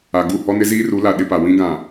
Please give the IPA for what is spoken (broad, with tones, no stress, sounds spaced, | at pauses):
a˨ ɡ u˦˨ h ɔ˦ n ɪ˦ z iː˦ r u˨˦ l a˨ ɗ ɪ˦ p a˨ w ĩ˦ ɡ ã˨